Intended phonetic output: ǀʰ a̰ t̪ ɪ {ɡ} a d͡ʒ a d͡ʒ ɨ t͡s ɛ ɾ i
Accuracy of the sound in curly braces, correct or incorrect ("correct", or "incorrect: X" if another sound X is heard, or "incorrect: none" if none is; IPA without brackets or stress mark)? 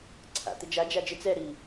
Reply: incorrect: d͡ʒ